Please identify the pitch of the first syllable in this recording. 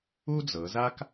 high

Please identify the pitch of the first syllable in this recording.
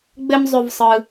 high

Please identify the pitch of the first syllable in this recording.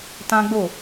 high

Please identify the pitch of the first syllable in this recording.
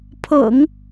low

